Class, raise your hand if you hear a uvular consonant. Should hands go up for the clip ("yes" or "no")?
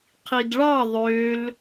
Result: yes